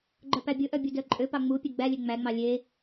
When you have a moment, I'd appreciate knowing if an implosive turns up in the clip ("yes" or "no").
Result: no